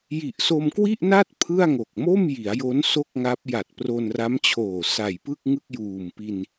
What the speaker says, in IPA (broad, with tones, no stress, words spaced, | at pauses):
ji˨˩ʔso˧mkwi˥˩ʔna˥˩t̚ pʰɯ˥˩a̯ŋo˨˩k̚ mo˥˩mji˩˦a̯jo˦˥n so˥˩k̚ŋa˦˥p̚ ja˨˩t̚pro˧nra˦˥mt͡ɕʰoː˨˩ sa˨˩jpɯ˥˩k̚ ŋɯ˥˩k̚juː˨˩mpi˧n